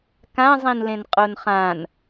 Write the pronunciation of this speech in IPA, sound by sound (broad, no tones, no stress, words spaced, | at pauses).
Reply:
kãzˤĩnlẽn qʼonχãn